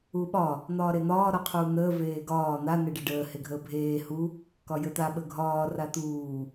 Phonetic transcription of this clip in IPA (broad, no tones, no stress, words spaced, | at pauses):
uɓɒ | n̪ɒːɾen̪ɒː ɾɒqʰuːn̪əː veːɡɒː n̪a neɖeɖəː heɡʱəːbʱeː hu | kɒjət̪a ɓəɡʱɒː rat̪uː